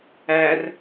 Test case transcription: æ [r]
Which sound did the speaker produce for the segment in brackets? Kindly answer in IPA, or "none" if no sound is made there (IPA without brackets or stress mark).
r